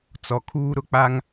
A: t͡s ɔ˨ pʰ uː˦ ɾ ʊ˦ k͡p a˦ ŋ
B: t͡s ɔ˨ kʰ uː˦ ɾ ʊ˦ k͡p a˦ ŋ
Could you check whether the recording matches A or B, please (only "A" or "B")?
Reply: B